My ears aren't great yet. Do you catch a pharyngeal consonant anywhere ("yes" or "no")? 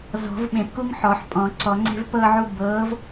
yes